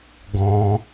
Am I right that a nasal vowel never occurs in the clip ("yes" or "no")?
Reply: no